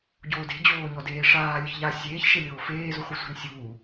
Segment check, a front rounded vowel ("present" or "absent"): absent